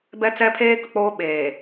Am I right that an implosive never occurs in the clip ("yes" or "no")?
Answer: no